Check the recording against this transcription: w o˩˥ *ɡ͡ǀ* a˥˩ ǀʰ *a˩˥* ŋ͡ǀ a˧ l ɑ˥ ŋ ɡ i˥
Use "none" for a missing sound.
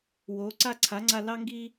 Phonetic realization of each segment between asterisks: ǀ, a˩˥

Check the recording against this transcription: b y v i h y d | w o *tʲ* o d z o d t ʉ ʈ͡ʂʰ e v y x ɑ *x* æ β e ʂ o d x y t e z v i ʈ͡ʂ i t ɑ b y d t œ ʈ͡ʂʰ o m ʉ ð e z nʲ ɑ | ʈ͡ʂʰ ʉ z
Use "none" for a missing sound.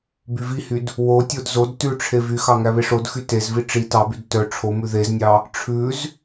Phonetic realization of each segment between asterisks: tʲ, ŋ

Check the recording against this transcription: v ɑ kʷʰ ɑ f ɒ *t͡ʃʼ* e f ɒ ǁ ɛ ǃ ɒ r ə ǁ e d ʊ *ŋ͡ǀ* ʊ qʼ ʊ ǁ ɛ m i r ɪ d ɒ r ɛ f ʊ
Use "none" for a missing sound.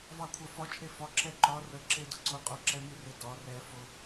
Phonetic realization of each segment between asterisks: t͡ʃʼ, ǀ

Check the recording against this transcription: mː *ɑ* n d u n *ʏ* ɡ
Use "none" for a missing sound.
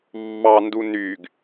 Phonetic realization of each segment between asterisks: ɑ, y

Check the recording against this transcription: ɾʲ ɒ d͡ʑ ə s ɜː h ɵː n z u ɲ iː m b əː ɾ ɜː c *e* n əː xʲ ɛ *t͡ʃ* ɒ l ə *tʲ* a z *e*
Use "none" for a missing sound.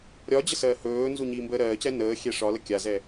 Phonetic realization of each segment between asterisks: ɛ, ʂ, kʲ, ɛ

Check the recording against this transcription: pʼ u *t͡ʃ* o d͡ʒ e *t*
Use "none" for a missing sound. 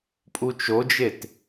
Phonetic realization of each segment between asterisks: t͡ʃ, t

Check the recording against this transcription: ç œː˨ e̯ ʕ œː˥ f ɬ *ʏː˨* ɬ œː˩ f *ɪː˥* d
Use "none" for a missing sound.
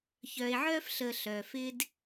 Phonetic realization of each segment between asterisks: əː˨, ɪː˥

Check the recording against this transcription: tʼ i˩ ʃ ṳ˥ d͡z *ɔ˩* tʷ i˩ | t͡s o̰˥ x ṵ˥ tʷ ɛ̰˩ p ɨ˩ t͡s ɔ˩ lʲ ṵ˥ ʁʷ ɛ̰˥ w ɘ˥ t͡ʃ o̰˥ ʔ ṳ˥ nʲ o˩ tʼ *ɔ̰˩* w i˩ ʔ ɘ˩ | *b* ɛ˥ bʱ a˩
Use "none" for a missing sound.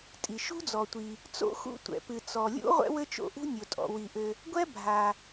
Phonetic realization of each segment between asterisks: ɔ˩, ɔ̰˩, ɡʷ

